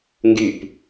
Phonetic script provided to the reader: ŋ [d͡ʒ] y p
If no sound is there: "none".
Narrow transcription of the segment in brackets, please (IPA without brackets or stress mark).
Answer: ɡ